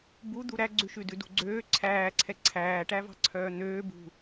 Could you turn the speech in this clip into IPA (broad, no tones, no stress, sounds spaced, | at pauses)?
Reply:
b u d̪ u ɾ æ ɡ͡ǀ ʉ ʃ ʉ d ʉ d ṳ ɡ͡ǀ øː ǀʰ æː ǀʰ ɛ ǀʰ æː ʈ æ v ɑ̤ ǀʰ œː n̪ øː b ṳ